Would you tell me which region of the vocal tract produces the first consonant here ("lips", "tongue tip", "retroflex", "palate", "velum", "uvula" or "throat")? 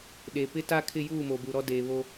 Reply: tongue tip